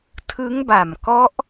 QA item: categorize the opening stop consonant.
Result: aspirated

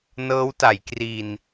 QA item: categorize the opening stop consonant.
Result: plain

